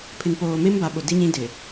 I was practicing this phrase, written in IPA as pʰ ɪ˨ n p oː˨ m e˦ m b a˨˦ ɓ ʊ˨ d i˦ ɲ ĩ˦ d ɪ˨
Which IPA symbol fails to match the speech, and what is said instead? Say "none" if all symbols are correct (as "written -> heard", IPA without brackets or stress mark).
none